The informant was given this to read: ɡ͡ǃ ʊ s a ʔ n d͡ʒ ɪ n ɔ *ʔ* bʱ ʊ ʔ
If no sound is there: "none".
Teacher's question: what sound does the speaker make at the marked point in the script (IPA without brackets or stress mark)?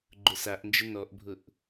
ʔ